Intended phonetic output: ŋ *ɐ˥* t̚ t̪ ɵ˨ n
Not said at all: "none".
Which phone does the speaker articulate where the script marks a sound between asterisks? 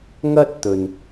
ɐ˥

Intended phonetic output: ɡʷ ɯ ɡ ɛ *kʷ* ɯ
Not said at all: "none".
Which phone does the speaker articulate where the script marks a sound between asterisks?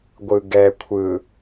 kʷʰ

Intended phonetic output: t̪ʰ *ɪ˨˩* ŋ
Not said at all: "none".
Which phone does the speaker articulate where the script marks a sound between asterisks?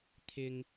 ɪ˧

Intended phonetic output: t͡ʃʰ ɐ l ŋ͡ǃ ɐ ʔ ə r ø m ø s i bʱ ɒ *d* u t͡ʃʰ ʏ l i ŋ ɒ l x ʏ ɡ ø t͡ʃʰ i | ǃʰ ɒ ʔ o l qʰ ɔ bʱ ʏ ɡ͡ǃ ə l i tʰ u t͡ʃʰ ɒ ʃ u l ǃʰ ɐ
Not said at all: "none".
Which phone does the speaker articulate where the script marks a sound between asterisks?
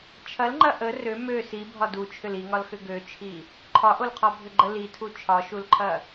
d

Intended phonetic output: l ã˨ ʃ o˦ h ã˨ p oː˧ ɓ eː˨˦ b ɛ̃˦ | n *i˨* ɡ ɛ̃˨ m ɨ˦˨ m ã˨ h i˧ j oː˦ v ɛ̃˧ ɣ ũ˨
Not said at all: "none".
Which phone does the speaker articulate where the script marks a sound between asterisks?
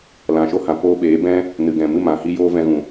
ɨ˨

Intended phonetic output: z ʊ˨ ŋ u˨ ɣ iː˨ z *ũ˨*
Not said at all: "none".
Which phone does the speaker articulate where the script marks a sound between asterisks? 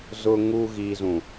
ũ˨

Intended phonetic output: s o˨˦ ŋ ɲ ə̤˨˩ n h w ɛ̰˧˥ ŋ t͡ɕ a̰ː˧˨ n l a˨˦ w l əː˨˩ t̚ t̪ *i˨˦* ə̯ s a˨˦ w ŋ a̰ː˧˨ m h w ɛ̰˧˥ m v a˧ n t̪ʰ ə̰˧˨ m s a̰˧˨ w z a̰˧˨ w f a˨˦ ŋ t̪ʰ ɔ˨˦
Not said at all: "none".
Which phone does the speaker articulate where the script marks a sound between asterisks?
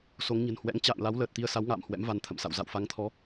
i˧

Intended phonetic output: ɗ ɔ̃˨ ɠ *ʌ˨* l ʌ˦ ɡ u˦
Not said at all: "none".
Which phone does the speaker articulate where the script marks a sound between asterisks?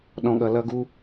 ʌ˨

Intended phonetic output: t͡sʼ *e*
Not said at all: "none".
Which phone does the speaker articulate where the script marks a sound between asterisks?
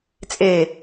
e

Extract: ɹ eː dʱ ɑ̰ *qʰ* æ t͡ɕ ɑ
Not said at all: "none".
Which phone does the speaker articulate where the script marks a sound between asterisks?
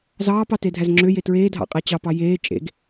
qʼ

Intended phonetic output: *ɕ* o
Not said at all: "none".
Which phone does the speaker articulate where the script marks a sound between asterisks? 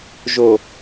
ʒ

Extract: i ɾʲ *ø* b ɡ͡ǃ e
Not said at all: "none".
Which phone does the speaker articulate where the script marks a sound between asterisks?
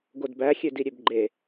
ø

